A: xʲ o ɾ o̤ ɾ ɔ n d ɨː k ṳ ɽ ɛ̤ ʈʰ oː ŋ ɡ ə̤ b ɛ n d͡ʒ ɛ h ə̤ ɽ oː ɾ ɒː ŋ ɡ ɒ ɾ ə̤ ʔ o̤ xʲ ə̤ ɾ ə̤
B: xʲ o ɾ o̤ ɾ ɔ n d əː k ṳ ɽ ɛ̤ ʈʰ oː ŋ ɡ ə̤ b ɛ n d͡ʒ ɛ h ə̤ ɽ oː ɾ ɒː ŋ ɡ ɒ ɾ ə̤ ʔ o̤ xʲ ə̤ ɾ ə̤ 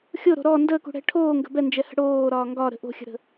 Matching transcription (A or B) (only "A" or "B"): B